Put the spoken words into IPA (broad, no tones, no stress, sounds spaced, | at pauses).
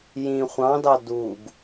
j ĩ χʷ ɑ̃ d ɑ d u ɡ